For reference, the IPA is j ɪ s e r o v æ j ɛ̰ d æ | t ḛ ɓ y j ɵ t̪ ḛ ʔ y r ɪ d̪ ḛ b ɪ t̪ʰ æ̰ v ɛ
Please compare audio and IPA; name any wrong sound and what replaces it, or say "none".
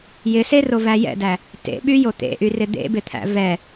ɵ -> o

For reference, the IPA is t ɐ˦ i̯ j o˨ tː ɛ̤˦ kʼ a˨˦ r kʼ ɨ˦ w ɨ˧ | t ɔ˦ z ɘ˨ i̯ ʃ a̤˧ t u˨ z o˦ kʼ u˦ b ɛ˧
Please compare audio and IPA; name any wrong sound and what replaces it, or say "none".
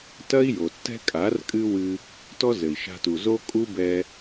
none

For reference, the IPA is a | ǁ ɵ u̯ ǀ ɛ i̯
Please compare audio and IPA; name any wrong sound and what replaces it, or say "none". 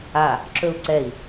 none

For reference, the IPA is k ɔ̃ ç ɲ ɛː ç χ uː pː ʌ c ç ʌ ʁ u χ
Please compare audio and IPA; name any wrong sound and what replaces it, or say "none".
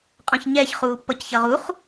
k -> qʼ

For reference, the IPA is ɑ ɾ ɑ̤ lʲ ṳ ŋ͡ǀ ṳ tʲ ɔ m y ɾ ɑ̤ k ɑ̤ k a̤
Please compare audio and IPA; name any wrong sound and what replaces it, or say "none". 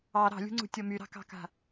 none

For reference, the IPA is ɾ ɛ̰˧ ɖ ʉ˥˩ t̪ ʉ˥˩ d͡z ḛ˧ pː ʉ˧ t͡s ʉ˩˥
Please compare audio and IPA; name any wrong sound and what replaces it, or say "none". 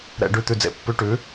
t͡s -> ʈ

